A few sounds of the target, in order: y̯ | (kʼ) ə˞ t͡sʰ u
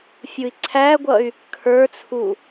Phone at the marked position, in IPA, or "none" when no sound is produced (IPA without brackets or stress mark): kʰ